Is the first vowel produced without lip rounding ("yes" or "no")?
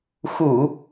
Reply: no